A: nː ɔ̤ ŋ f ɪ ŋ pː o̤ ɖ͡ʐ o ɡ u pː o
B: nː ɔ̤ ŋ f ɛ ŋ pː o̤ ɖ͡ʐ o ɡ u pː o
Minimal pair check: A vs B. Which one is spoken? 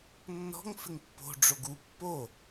A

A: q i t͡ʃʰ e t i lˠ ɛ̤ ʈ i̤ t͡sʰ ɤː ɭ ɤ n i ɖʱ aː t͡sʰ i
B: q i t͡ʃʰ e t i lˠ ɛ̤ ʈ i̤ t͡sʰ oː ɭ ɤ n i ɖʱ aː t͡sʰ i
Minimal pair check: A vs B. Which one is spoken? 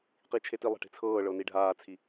A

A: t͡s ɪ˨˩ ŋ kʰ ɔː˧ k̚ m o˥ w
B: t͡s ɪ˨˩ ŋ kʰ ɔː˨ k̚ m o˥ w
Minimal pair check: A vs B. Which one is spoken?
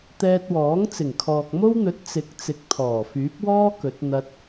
B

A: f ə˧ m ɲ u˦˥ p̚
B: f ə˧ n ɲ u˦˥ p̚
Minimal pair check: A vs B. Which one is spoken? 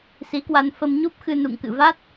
A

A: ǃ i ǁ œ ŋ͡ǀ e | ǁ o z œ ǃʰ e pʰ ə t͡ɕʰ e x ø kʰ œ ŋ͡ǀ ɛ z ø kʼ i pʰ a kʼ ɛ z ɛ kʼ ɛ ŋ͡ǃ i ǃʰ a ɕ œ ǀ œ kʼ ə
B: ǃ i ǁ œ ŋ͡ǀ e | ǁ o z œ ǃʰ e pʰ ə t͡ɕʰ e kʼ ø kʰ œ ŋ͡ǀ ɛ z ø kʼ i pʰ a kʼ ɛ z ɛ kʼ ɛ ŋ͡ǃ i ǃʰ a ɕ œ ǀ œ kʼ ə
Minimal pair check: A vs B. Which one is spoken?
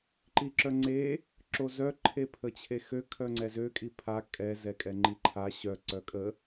A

